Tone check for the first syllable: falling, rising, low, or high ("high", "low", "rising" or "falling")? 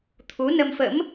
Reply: rising